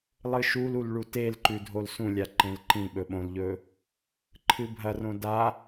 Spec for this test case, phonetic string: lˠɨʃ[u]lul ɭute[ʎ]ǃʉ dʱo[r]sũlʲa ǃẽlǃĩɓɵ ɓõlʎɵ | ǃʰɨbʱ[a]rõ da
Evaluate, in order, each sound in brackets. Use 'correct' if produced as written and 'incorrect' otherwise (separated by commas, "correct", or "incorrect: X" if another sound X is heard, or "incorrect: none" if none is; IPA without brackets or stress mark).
correct, incorrect: l, incorrect: l, incorrect: ɐ